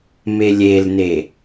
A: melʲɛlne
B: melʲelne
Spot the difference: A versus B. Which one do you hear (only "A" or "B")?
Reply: B